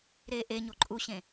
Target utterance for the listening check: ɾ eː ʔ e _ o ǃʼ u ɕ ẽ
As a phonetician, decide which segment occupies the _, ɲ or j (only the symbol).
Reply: ɲ